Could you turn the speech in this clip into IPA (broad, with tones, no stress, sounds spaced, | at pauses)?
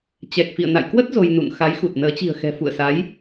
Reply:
t͡ɕ ɛ˨˩ k̚ f ḭ˧˨ ə̯ n a̰˧˨ j k w ə˦˥ t̚ z o˧ j n ṵ˧˨ n x a˨˦ j x u˨˩ t̚ n əː˨˦ t͡ɕ i̤˨˩ ə̯ x ɛ̤˨˩ f ṵ˧˨ ə̯ s a˨˦ j